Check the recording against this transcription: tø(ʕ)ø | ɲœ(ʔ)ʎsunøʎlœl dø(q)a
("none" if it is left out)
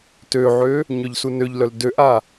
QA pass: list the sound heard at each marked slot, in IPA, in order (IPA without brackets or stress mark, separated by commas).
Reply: ʕ, none, ʔ